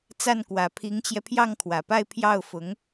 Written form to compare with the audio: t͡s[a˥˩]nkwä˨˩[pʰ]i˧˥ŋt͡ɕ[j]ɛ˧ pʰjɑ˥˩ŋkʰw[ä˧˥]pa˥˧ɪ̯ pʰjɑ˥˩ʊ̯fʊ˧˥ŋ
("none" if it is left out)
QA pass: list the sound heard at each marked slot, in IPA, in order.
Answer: a˥˩, pʰ, j, ä˨˩

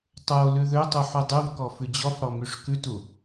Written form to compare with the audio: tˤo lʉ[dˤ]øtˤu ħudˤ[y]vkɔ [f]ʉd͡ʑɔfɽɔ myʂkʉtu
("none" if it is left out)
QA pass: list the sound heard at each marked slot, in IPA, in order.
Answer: ð, y, f

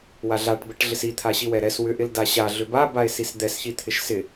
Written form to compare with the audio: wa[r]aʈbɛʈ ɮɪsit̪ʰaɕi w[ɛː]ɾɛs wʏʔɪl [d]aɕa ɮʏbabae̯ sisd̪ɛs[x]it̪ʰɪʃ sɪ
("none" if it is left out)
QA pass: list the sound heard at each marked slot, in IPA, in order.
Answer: ɮ, ɛ, d, ç

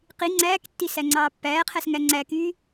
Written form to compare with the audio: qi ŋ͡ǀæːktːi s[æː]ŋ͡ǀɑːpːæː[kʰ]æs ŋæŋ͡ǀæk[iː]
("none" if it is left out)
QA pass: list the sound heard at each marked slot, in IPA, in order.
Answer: æ, qʰ, yː

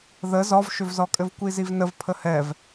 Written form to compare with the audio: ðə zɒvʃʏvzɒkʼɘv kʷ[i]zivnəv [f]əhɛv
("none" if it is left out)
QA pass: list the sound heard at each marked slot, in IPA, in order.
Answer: i, pʰ

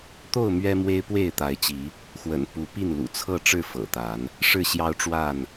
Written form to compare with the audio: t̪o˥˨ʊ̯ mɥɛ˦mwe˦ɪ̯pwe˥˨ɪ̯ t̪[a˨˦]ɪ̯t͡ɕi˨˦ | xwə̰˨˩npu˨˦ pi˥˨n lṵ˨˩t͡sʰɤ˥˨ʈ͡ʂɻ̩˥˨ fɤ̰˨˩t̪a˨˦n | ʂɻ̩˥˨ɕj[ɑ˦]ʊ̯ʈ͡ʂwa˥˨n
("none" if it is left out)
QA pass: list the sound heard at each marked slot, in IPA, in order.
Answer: a˨˦, ɑ˦

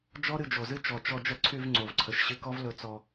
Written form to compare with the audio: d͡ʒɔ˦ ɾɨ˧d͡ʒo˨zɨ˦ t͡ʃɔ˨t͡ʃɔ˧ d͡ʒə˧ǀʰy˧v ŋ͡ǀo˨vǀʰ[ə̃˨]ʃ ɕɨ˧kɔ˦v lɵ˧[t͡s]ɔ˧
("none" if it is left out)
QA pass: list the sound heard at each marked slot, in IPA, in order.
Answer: ə˨, t͡s

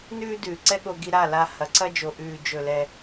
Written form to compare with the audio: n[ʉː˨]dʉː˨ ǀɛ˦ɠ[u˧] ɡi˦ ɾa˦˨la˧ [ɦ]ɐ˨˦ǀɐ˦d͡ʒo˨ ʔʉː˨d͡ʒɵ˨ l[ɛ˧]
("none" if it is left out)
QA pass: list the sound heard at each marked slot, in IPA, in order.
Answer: ʉː˦, o˧, h, ɛ˧

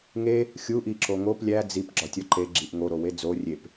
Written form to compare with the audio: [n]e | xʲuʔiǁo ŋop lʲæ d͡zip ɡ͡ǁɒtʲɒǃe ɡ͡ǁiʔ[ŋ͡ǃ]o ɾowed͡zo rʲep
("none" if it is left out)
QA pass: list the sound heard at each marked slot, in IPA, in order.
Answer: ŋ, ŋ

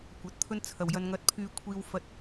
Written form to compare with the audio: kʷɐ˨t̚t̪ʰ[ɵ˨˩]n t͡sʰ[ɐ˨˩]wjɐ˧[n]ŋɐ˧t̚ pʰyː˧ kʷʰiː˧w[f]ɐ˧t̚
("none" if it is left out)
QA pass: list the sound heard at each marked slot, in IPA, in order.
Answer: ɵ˥, ɐ˨˩, n, f

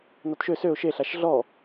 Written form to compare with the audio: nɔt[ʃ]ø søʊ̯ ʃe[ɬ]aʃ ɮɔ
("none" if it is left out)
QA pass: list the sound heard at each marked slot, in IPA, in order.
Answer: ʃ, ɬ

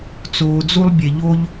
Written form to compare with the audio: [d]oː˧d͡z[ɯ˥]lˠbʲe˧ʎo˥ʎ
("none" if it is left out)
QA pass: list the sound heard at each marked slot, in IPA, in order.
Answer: t͡s, u˥

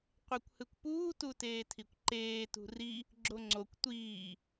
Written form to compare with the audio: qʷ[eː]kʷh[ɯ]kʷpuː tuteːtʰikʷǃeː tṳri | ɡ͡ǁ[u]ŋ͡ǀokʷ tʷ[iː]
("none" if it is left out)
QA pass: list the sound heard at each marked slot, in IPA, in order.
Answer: e, ɯ, o, iː

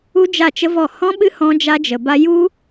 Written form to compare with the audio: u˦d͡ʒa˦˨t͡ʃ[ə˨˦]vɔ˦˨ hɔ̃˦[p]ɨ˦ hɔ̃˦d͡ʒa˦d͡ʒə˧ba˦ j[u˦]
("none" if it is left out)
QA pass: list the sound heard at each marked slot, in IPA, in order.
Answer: ə˦, ɓ, u˦

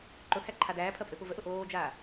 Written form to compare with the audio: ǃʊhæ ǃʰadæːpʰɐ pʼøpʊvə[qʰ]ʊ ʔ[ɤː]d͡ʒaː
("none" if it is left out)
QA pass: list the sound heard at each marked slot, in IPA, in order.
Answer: ʔ, oː

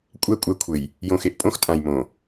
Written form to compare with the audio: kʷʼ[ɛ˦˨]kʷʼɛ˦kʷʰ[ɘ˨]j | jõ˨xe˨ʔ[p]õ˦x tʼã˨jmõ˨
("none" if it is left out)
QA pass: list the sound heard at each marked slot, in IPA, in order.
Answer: ɛ˦˨, ɘ˨, pʼ

